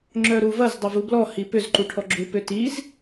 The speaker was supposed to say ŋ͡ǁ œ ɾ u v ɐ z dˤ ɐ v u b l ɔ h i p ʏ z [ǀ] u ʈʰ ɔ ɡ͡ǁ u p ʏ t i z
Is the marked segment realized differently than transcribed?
yes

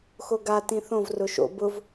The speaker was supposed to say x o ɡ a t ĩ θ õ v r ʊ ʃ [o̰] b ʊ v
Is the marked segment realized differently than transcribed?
no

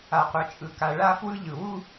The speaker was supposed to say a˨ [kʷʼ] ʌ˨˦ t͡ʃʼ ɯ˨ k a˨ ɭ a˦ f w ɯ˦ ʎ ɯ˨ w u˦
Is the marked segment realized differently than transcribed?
yes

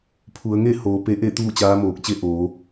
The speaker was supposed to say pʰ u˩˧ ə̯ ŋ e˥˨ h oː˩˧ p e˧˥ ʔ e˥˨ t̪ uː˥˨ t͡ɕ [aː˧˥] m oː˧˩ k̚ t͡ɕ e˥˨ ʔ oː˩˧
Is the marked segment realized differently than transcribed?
no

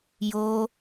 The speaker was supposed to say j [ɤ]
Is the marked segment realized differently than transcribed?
yes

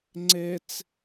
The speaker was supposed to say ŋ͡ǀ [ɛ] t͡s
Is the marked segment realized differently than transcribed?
yes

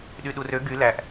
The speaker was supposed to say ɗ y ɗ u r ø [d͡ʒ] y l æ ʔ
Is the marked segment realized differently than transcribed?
yes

